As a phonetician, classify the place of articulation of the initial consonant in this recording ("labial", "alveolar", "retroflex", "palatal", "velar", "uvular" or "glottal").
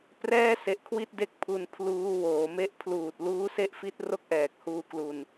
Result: labial